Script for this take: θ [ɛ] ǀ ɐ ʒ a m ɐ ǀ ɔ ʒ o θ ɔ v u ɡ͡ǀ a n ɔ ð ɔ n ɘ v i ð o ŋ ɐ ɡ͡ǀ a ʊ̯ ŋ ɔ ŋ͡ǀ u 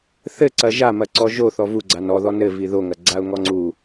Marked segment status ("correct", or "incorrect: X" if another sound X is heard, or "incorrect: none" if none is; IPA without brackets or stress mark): incorrect: ɘ